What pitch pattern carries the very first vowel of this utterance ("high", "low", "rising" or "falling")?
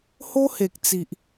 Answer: high